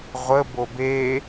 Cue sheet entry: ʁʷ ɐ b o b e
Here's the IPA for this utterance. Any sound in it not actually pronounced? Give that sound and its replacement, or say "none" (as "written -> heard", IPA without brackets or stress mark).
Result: ɐ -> ə